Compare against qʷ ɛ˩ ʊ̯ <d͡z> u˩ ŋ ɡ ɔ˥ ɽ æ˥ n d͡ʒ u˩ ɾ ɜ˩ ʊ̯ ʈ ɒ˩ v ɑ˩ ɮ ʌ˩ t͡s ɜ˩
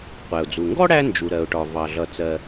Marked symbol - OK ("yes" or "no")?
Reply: yes